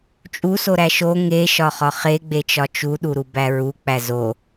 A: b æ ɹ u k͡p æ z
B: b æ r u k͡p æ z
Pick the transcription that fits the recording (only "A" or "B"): A